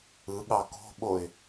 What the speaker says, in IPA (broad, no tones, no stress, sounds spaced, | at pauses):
ɯ ɠ ɑ k o̤ ɓ o ɪ̯